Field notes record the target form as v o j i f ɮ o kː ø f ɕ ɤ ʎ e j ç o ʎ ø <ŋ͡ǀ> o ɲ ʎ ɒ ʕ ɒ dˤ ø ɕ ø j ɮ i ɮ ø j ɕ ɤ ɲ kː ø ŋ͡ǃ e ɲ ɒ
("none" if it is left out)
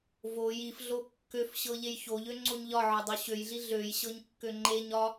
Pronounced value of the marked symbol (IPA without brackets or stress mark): ŋ͡ǀ